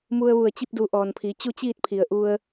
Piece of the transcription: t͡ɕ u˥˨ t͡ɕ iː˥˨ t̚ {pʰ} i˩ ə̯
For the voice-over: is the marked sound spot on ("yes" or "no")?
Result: yes